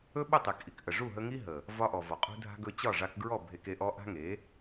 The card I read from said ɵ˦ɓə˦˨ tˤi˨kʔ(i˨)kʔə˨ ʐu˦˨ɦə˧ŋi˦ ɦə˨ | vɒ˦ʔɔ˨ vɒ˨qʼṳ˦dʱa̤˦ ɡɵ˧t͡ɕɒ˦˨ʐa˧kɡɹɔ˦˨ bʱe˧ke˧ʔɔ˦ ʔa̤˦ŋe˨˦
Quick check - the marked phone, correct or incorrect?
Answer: correct